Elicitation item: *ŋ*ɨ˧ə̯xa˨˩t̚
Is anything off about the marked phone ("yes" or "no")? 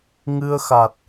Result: no